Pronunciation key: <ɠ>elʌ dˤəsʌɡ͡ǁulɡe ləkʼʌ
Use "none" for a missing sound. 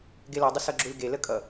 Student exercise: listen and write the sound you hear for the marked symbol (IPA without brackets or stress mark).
ɡ